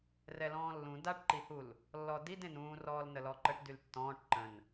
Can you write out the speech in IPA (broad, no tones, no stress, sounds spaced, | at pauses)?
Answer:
r ɛ l ɔ̃ː lː ũ d a ʈ ǃ i h u l | lː ɔ d i d ẽ n ũː r ɔː l n ə l ɔ ǃ ə ʈ d y l tː ɔ̃ː ʈ ǃ ə̃ n